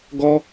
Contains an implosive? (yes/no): no